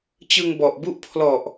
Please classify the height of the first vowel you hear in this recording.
high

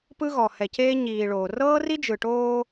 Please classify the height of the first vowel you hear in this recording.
high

